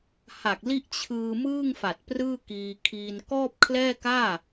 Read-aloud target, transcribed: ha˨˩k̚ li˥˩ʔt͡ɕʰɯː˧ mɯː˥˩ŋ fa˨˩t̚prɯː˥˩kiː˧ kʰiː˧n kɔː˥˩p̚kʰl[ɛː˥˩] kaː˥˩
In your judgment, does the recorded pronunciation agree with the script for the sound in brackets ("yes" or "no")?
yes